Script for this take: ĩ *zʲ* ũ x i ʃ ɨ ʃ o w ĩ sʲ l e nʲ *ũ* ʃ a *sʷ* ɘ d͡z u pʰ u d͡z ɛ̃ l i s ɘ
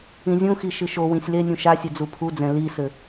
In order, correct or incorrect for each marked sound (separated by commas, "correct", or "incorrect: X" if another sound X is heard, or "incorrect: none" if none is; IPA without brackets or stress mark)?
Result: correct, correct, incorrect: sʲ